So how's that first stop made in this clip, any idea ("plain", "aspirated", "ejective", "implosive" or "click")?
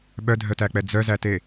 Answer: implosive